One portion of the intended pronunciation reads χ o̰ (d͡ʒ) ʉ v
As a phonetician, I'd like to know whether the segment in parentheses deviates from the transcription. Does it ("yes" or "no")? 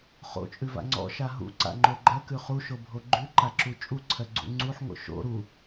yes